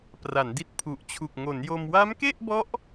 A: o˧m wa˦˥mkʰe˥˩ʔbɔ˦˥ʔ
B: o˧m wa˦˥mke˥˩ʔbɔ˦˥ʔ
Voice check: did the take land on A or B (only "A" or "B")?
B